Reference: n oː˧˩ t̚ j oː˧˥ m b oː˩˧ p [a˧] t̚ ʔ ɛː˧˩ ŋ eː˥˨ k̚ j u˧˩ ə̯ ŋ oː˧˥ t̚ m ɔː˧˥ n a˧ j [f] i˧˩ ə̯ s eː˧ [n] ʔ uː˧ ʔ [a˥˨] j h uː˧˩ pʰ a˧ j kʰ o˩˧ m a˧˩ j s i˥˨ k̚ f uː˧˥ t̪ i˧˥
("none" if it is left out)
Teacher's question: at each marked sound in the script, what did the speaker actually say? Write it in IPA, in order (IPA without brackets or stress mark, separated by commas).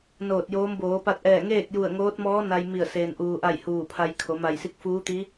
a˧, m, n, a˥˨